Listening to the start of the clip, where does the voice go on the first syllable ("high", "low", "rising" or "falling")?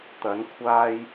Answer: rising